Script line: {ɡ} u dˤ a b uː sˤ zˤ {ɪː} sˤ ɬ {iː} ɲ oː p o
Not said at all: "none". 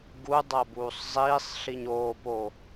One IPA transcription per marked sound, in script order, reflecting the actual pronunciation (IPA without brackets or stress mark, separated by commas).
ɡ, iː, i